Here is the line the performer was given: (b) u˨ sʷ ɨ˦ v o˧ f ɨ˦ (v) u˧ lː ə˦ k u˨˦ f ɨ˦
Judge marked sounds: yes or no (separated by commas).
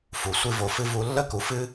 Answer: no, yes